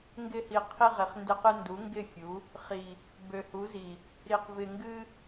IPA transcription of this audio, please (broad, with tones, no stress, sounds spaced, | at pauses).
ŋ ɡ ɪ˧ h i˨ qʰ i˧ ʁ ɪ˨ χ n d ɪ˧ q ɨ˧ n d u˨˦ ŋ ɡ ɪ˦˨ fʲ u˨˦ | χ i˨ | b ø˨ h u˨˦ z i˨ | ɾ i˨ q v ɪ˨ ŋ ɡ ɨ˧